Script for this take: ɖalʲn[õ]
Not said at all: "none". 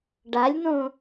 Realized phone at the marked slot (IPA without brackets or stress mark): õ